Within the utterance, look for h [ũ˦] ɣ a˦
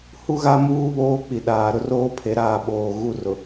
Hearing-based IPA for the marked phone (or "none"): u˦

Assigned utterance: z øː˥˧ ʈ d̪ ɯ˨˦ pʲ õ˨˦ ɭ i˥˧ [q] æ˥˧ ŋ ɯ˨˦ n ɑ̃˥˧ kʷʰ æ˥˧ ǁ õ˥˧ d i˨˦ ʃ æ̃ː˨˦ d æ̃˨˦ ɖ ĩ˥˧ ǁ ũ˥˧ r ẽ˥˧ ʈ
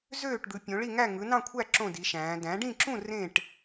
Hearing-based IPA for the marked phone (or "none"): ŋ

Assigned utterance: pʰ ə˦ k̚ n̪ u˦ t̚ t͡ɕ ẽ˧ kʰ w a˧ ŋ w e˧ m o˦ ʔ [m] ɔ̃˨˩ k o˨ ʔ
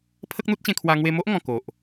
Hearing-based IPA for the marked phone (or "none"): ŋ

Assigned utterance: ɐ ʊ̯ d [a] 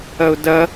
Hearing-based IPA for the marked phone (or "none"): ɐ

